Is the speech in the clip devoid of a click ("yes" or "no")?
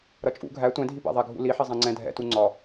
no